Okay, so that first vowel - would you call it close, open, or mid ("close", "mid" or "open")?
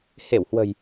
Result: mid